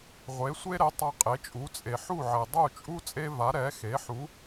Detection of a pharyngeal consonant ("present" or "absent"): present